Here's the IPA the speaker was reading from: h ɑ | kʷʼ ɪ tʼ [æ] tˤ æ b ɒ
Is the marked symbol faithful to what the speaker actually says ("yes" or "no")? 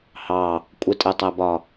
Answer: no